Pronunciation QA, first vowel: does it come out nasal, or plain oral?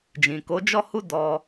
nasal